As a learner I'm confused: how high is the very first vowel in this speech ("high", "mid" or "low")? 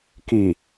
high